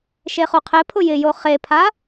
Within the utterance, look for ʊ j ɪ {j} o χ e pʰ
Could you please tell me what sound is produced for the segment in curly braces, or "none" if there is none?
j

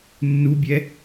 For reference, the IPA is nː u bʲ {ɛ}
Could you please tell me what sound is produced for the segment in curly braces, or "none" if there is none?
ɛ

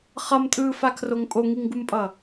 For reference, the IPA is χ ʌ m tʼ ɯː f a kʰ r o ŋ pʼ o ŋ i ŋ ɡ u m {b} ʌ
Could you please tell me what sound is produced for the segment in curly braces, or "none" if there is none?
pʼ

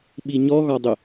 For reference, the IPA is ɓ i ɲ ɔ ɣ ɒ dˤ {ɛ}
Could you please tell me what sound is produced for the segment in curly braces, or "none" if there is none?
ʏ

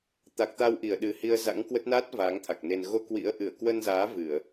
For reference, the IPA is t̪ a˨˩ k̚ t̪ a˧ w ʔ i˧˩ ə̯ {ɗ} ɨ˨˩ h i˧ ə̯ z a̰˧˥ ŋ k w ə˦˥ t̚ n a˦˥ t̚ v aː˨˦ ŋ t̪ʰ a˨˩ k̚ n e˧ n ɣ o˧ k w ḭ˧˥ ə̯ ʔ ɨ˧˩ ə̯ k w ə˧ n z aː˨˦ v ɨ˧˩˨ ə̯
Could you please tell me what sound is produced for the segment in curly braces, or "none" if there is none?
ɗ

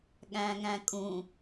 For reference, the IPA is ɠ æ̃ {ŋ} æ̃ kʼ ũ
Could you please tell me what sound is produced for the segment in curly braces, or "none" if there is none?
ŋ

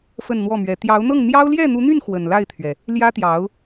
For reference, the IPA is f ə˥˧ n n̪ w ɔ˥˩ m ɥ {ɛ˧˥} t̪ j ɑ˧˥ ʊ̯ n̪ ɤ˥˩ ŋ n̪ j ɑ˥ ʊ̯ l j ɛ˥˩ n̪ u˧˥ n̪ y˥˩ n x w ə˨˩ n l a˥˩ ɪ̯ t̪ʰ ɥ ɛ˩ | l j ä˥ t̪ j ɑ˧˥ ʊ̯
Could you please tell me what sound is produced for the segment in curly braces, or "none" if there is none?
ɛ˧˥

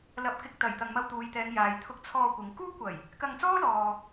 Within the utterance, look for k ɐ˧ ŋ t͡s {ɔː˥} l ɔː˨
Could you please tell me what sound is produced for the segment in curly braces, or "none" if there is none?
ɔː˥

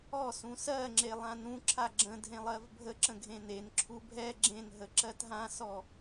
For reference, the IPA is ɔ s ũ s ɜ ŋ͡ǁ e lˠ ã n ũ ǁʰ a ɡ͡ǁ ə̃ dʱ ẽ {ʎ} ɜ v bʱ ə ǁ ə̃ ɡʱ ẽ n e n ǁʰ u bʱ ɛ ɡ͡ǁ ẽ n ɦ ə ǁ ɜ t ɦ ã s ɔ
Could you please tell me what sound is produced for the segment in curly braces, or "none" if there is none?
lˠ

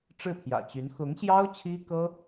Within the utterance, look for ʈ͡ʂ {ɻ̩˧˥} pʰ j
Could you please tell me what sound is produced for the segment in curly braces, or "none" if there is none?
ɻ̩˥˩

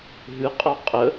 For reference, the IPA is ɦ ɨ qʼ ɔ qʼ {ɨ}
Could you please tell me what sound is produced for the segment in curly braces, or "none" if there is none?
ə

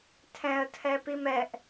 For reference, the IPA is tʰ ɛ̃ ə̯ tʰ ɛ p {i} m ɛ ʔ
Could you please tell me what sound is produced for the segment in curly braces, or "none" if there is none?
i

